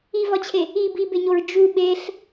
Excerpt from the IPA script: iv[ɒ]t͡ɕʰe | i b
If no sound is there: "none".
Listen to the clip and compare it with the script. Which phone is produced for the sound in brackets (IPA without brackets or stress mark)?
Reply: ɒ